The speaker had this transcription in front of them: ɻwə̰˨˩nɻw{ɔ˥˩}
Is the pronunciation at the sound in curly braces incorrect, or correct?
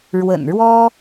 incorrect